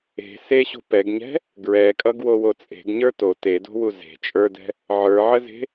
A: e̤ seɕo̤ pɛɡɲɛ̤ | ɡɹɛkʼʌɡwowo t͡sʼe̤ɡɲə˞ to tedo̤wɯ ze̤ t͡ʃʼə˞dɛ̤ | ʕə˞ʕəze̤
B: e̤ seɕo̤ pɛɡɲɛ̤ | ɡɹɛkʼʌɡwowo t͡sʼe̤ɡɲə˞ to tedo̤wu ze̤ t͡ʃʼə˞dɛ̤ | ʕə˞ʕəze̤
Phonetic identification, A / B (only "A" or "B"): B